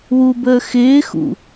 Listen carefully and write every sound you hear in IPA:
w u b əː x ɪː x ṵ

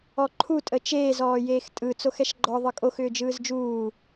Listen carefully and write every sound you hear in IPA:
ɔ ǃʰ u tʼ ə t͡ʃ eː z ɔː j eː x tʼ ɯ t͡s o x ɛ ʃ ɡ͡ǃ ɔ ðˤ ɯ kʼ o x ʏː d͡ʒ ɯː z d͡ʒ uː

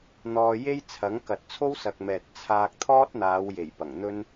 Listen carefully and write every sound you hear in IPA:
n̪ ɔː˧ j e˥ j t͡sʰ ɐ˨˥ ŋ k ɐ˨ t̚ t͡sʰ o˥ w s ɐ˨ k̚ m ɛː˨ t̚ t͡sʰ aː˧ k̚ t̪ʰ ɔː˥ t̚ n̪ aː˨˧ w j e˨˩ j p ɐ˨˩ ŋ n̪ ɵ˥ n

